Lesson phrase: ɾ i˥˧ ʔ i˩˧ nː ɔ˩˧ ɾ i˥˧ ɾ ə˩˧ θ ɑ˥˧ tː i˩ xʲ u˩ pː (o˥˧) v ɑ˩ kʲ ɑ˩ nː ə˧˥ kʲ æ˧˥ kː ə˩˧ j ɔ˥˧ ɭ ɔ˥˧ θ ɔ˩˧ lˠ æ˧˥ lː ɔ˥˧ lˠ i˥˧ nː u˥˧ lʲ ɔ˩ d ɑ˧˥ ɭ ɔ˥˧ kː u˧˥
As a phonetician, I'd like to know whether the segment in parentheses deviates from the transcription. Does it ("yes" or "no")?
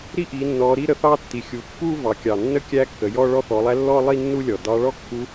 yes